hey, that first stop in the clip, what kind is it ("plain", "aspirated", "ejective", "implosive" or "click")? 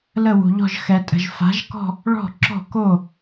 ejective